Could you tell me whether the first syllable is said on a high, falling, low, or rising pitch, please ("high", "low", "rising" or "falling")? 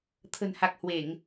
low